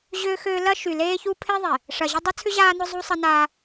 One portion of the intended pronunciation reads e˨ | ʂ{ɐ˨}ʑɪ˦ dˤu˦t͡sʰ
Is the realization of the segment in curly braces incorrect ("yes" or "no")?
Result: no